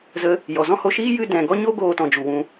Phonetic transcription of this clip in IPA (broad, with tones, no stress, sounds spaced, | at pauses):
z ə˦ | j ɔ˨ z ɔ̃˦ h o˧ ʃ iː˦ j ɨ˧ d ɛ̃˨ ɡ ɔ˦ ɲ o˦ ɡ oː˧ t ɔ̃˨ d͡ʒ u˨ w ũ˧